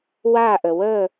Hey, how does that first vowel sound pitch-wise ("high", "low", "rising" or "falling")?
falling